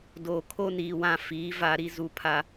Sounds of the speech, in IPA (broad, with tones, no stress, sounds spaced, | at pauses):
d oː˨ kʰ o˦ n iː˨ w ã˦˨ f iː˨˦ v a˦ ɾ i˦ z u˦ pʰ a˦